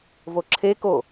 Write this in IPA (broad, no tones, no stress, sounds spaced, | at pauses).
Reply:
v o ǁʰ e k o